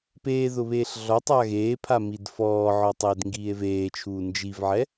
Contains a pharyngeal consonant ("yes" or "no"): yes